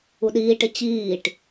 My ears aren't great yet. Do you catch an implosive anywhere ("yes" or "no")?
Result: yes